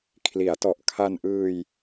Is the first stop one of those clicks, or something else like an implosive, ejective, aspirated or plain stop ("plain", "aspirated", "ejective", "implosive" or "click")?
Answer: aspirated